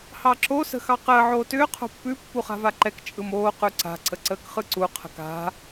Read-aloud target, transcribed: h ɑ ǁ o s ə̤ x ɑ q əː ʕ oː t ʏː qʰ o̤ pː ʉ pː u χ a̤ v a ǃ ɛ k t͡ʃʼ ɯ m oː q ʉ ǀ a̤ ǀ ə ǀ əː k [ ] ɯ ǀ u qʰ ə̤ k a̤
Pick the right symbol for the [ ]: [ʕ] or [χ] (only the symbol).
χ